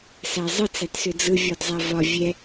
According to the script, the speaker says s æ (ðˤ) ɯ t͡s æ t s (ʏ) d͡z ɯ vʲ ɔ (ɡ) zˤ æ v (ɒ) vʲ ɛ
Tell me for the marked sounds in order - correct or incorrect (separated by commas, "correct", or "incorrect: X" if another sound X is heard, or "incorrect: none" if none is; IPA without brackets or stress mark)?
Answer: incorrect: zˤ, correct, incorrect: d, correct